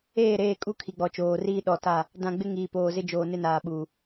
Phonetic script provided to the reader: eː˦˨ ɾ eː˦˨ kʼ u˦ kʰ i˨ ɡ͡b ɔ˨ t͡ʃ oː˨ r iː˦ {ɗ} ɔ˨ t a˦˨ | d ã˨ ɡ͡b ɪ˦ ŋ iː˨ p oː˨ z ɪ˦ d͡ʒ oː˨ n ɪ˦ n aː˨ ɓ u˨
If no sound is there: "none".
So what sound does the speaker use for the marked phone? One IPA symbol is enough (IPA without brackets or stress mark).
ɗ